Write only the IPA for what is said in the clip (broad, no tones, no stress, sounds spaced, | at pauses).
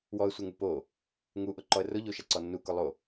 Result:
w ɔ ə̯ sʷ ɘ ŋ u p o | ŋ u ʔ ʊ ǃ ɔ ə̯ r ʊ ʎ o ʃ a ǀ ɔ nː u k ʊ lˠ o